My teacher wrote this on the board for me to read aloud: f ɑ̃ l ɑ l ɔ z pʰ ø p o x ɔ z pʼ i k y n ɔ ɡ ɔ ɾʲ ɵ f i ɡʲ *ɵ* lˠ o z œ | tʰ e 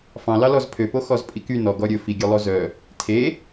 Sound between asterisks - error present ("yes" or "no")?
yes